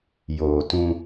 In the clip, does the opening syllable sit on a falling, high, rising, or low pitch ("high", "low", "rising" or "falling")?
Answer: low